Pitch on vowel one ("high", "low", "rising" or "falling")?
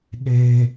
high